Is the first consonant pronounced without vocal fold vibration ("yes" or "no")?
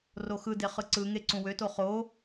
no